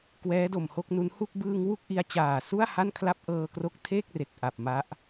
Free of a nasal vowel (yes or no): yes